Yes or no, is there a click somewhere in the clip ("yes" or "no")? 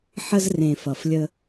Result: no